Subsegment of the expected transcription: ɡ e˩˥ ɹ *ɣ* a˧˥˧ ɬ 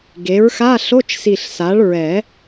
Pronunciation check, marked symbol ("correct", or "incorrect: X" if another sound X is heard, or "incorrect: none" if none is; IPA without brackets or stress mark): incorrect: x